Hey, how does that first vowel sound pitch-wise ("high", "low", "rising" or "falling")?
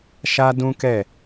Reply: high